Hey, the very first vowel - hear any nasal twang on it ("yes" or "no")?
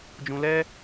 yes